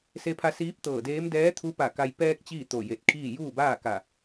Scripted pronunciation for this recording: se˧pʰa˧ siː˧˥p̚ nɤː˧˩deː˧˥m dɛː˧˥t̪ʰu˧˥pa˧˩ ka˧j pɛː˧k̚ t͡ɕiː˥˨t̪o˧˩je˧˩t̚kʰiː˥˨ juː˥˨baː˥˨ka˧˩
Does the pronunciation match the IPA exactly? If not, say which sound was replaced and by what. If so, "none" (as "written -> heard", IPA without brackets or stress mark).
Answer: n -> t̪